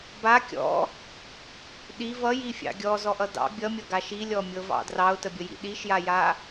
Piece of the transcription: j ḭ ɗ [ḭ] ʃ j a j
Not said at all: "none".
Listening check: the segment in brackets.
i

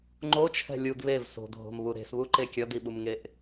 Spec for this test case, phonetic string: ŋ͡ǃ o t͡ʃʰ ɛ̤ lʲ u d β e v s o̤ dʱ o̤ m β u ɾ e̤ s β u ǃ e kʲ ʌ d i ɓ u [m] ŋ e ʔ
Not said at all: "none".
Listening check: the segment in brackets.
m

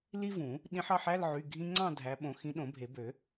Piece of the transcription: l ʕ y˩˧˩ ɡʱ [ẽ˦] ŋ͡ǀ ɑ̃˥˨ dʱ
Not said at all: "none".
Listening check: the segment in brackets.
ĩ˦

